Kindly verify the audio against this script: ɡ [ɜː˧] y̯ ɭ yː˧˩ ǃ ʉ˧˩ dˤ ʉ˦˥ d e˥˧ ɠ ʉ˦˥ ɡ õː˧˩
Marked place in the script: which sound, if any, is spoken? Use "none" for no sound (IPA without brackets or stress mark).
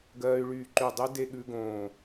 ɜː˧